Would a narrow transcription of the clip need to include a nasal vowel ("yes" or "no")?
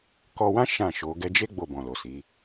yes